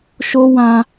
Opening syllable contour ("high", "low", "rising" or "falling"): high